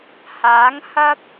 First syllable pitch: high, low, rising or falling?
rising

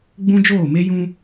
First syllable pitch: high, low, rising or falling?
high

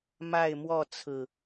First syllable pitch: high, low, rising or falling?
falling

